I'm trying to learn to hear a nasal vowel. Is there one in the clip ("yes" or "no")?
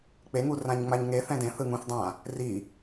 yes